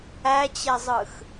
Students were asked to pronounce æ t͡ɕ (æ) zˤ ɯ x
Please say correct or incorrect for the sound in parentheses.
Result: incorrect